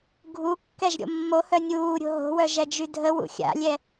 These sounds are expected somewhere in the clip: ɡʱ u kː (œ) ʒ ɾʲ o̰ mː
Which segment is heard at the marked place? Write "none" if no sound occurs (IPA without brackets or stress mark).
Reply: ɛ